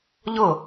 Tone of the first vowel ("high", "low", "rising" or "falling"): falling